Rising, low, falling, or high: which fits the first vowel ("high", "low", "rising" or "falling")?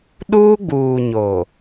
high